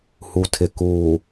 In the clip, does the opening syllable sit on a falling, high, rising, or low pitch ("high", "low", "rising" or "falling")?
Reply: low